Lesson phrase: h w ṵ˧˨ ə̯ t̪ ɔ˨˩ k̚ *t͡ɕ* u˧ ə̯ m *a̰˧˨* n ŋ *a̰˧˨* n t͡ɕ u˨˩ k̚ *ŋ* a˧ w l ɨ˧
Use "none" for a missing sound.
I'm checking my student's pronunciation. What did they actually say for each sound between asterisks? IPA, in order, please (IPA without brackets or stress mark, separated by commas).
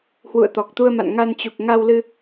t̪, a̰˧˨, a˧, ŋ